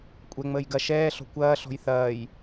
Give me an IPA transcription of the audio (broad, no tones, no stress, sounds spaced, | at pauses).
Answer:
kʷʼ ɛ ŋ͡m əː j ɡ ɐ ʃ ɛː ɬ ɔ̤ kʷ ɐː ɬ ɔ̤ j θ ɐː j